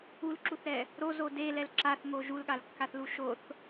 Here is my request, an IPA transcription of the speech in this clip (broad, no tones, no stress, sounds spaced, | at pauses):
u l ǁ u θ ɾ ɛ | ɾ o z o d e l ɛ l ǁ a θ ŋ o ʒ u l ɠ a l kː a θ l u ʃ o θ